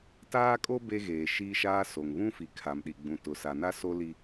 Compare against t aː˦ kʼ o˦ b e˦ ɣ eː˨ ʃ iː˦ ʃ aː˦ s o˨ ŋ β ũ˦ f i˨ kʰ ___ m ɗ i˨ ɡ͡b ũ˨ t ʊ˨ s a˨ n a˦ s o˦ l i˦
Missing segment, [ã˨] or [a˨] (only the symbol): a˨